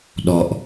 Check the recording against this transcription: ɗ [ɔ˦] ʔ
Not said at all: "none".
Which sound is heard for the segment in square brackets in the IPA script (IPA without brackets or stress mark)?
ɔ˦